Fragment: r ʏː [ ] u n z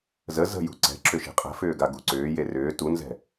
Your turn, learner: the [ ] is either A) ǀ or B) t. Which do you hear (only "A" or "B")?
B